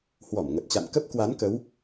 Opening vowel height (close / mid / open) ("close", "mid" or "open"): mid